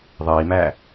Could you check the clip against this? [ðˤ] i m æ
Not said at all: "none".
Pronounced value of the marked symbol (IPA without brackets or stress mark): ðˤ